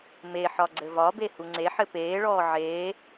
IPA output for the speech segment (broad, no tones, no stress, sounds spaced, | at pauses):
m e ħ ɒ ɡ͡ǀ ɘ v ɒ b e h u ŋ͡ǀ e ħ ɘ p eː ɭ ɔː ʕ eː